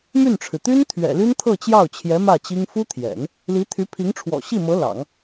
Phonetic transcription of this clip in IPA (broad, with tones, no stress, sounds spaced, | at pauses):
m y˥˩ n ʈ͡ʂʰ ɻ̩˩ t̪ y˥ n t̪ʰ ɥ ɛ̰˨˩ l y˥ n t̪ʰ ɤ˥˧ t͡ɕ j ɑ˥˩ ʊ̯ t͡ɕʰ j ɛ˧˥ m ä˥˩ t͡ɕ i˥ ŋ f u˥ t̪ʰ j ɛ̰˨˩˦ n | l i˧˥ t̪ʰ y˧˥ pʰ i˧˥ ŋ ʈ͡ʂʰ w ɔ̰˨˩ ɕ i˥˩ m ɤ˧˥ l ɑ̰˨˩˦ ŋ